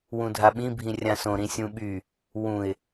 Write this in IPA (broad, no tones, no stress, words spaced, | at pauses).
wũdʱaɓĩbʱĩ rʲãsõɾĩ sʲũɓy | wũɪ̯